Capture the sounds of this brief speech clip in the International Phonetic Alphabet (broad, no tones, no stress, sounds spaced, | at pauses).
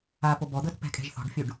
a p o b ɔ d̪ ɤ t p ɛ̤ kʼ ɛ̤ ʒ θ ɔ̤ ɖ fʲ u ɖ